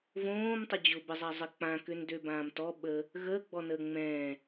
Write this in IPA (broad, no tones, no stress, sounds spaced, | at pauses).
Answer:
v õː m tˤ ʊ d͡ʑ ʊ b ə zˤ a zˤ ə k͡p ã k ø n d ø b ãː m t ɔ ɓ ə | ɣ əː ɡ͡b ɔ n əː ŋ͡m ɛ̃